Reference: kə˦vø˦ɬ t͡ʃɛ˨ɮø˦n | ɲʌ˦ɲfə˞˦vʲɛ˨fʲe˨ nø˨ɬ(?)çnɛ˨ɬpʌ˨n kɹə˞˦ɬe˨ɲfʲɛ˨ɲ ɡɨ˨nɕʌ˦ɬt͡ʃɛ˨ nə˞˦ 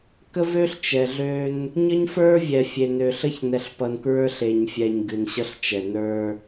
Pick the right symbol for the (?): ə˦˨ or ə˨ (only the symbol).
ə˦˨